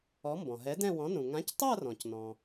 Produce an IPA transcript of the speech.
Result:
ɔ˨˥mbɔ̃˩ ɦɛ˨˥dɛ̃˥˧wɔ̃˨˥ nũ˩ ŋã˨˥ctˤa˥˧rɔ̃˩c nɔ̃˩

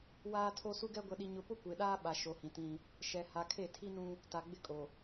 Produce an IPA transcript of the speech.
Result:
waː˦tʰo˦ su˦ɡɛ˦ ɡʷɛ˨ɗi˨ɲʊ˨pʊ˦ kʷe˨ɗaː˦ ɓa˨ʃo˨hĩ˨tĩ˦ | ʃɛ˨ha˨kʰe˦˨ tʰi˦nũ˦ | ta˨ɡ͡bɪ˦˨kʼo˨

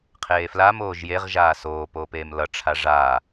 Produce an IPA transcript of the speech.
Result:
qʰeːflam oːʒjeʁ ʒaːsoː poːpeːmlʌ ʈ͡ʂʰaʐaː

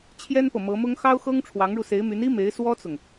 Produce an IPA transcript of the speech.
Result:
t͡ɕʰjɛ˥npɤ˨mɤ˧˥mʊ˥ŋ xɑ˥ʊ̯xɤ˥ŋ ʈ͡ʂʰwɑ˧˥ŋɻu˧se˧˥ɪ̯my˧˥n i˥me˧˥ɪ̯ swɔ˥t͡sʊ˨ŋ

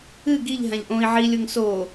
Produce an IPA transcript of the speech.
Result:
ɨ ɡiʎ ɦãʎʔõi̯ ʕi lʲʊŋ soː

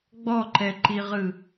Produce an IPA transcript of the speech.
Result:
ɡ͡bɔǃɛǃiʁɯ

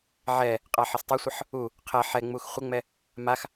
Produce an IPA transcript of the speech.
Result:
ʕɛ | qʼaħɪstˤosʷʌħ | u | qʰɛ ħɛŋ͡mux χʷɪŋ͡mɛ | max

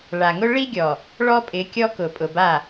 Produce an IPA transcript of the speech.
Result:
ɭa˨ŋʊ˦ ɭi˦ɡʲɔ˨ | ɭɔ˦pʼɪ˨˦kʲɔ˦kʊ˨ pʼʊ˨ba˦˨

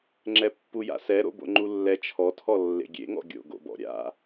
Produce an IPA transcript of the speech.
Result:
ŋ͡ǁɛpːuja̰sɛ ɾo̰bo̰ŋ͡ǃulːɛ t͡ʃʰɔtʰɔ lːḛɡʲḛŋɔ̰ ɡʲo̰ɡo̰bɔ̰ ɾʲa̰

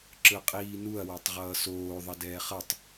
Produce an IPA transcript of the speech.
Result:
ǁɯqʼiːnuɐ̯ wɛtˤʁʌːsoː ðˤʌdɛːχʌtˤ

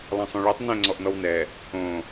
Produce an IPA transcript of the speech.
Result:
lˠɛ̃sˤõɭetˤ nɛ̃ ŋ͡ǀɔʔnɔwnɛ | õ

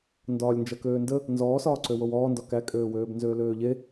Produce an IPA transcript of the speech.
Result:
ndɒːlʲnd͡ʒɐkøːndə | nzɔːsɒːǀø wowɔːndɒ kækʼøːwøːb nzøːløːʎe

